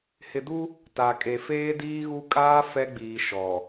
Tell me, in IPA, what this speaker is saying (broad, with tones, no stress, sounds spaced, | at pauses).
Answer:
h ɪ˨ d u˦ | t a˨ kʼ e˨ f eː˦ d iː˦ ɣ u˦ kʼ aː˦ f ɛ˦ ɡ͡b iː˨ ʃ ɔ˨